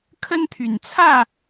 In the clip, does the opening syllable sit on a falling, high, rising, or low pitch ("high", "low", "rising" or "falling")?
high